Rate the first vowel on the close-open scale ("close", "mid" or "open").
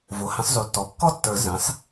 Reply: mid